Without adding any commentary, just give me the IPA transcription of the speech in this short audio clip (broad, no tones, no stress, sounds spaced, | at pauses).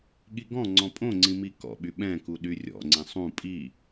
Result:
ɠ i ɡ ɔ̃ ŋ͡ǀ ɔ̃ pʼ õ ŋ͡ǀ ĩ m i k ɔ̰ ɓ y ɓ ɛ̃ k u ɗ y rʲ ɔ̰ ŋ͡ǀ ĩ sˤ ũ pʼ i